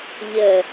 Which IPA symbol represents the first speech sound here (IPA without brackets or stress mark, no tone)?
ʎ